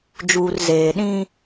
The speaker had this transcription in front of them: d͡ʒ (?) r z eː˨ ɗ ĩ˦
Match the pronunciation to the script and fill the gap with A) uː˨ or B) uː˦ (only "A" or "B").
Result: A